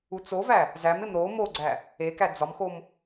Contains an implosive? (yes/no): no